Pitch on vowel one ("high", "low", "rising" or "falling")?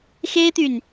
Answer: high